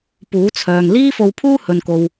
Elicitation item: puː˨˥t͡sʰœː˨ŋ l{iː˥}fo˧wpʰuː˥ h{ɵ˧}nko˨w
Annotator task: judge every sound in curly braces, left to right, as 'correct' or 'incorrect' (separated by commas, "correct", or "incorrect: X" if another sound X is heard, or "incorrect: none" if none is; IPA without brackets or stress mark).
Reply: correct, incorrect: ɵ˨